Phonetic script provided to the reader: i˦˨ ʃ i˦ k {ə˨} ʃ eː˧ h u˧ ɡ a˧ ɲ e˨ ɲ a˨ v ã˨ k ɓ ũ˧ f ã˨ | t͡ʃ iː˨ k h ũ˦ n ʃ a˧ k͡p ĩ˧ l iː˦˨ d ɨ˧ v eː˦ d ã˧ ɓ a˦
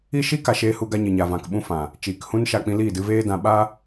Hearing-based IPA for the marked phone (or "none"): a˨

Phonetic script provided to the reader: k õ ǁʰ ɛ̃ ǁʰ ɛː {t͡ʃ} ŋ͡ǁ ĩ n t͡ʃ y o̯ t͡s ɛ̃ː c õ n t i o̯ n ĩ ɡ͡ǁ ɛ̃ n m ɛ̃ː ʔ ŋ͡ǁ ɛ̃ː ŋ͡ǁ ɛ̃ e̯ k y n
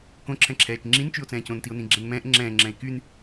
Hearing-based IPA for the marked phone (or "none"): t͡ʃ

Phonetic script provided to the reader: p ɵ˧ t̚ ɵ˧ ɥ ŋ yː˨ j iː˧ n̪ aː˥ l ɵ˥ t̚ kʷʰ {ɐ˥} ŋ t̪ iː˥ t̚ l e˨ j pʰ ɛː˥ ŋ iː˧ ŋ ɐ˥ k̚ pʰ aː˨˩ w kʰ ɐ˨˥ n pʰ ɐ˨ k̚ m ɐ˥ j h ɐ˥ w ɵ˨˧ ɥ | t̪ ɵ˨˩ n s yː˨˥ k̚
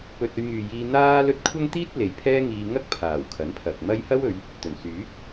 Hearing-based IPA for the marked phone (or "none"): ɐ˥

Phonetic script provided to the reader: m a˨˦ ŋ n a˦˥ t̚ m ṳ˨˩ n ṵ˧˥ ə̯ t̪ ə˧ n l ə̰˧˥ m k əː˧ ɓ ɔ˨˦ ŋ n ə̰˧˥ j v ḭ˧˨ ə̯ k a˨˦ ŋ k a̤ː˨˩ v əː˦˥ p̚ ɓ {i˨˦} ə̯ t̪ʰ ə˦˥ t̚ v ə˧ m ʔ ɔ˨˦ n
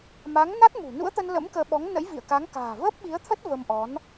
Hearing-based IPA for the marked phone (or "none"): i˨˦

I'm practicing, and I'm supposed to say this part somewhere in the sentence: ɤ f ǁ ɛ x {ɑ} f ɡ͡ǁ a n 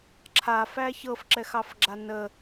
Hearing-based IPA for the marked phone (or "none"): ɑ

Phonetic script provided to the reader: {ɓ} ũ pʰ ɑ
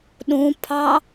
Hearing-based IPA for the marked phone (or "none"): ɗ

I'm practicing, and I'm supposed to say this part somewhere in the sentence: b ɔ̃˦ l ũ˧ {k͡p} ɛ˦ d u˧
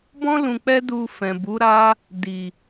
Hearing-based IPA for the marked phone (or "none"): k͡p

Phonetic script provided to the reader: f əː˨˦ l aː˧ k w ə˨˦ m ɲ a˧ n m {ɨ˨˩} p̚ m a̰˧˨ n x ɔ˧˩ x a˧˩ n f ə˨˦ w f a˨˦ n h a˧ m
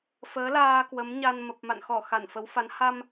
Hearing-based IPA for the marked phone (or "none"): ə˨˩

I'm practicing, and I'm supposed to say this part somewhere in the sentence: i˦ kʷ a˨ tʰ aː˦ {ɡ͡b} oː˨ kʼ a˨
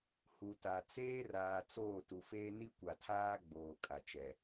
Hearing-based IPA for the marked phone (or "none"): ɡ͡b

